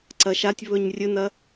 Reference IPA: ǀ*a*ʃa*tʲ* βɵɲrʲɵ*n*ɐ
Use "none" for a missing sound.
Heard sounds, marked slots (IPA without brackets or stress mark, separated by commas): ɐ, tʲ, n